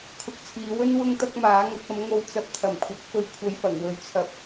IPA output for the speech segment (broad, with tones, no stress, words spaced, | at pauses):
kʰʊ˧k̚t͡sʰiː˨˧wɵ˥n wʊ˥ŋt̪ɐ˥k̚maː˨˥ ŋɐ˨˥k̚ɐ˨˥mŋo˧w t͡sɐ˧p̚t̪ʰɐ˨˩mkʷʰɐ˨˥k̚fɵ˧ɥ kʷʰɐ˧jfɐ˨˩ŋ wɵ˨˥ɥt͡sʰɐ˨p̚